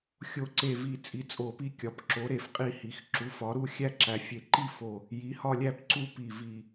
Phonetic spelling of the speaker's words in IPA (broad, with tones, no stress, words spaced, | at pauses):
xʲo˥˧ǀe˥˧vi˥˧ t͡sʼi˨˦t͡sʼo˧˩pi˥˧kʲɒ˨˦p ǁo˨˦ɾe˧˩f qʼi˥˧hi˨˦x ǁu˨˦fɒ˨˦ɾu˥˧ xʲæ˥˧ǁæ˨˦fʲe˧˩ ǃi˥˧fo˧˩ | ji˨˦hɒ˥˧lʲæ˥˧p ǀu˥˧pi˧˩ vi˧˩